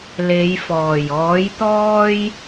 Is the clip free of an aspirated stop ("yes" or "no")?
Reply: yes